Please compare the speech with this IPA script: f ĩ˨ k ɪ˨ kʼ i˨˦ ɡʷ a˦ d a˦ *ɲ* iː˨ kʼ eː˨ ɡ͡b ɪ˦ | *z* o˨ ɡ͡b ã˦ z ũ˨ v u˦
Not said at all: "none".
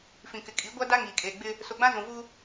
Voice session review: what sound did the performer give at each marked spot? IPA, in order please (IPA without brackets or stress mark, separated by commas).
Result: ŋ, s